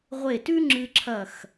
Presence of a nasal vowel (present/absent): absent